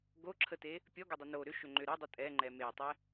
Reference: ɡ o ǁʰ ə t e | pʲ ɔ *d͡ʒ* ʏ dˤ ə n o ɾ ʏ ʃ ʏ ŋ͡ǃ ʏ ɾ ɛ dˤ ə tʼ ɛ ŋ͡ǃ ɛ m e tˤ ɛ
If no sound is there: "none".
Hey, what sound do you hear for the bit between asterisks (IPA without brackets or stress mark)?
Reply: ɡ